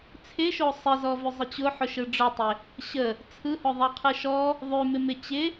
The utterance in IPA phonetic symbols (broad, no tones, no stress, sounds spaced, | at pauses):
t͡sʰ ɪ ʃ o sˤ ɪ z ɔ v ʉ zˤ ə t͡ɕ ʊ ħ ʊ ʃ ɯ ɖ͡ʐ ʊ tˤ ɪ | ɕ ə | t͡sʰ ɯ h ʊ ðˤ a qʰ ɯ ʃ ɔ | ðˤ ʉ m ɪ m ɪ t͡ɕ ɪ